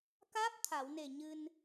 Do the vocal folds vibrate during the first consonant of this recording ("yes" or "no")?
no